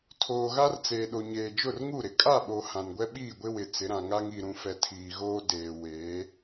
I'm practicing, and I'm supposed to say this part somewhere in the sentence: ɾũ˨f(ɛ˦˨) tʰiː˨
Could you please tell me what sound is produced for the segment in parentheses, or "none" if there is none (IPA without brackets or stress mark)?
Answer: ɛ˨